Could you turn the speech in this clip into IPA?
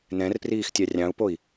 n ɛ̃ r p r iː x tʲ ɑ rʲ ɑ̃ u̯ p o i̯

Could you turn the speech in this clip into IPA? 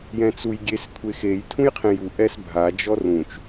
j ɛ̃ t͡s u j ɡʲ e s kʷʰ e x e j tʰ ũ j qʰ ẽ j u ʔ ɛ s bʱ a d͡ʒ ɔ r ũ t͡ʃ

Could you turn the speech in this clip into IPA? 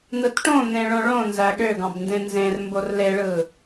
n̪ ɯ t ʈ õ n̪ ẽ ɭ õ ɭ õ n z æ ɠ ø ɡ ɑ̃ b n d ẽ n z ẽ r m b o r l e ɭ ɯ

